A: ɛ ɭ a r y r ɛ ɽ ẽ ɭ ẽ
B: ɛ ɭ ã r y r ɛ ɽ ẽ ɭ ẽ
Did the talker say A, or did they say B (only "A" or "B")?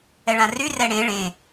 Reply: B